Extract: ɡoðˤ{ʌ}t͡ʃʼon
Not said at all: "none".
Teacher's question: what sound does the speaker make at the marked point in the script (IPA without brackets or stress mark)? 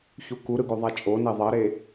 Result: a